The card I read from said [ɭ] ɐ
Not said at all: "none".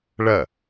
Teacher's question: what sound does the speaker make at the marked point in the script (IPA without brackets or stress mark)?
ɭ